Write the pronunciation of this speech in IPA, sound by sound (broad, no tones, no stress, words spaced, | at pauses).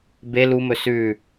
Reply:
be lumɵ sʉ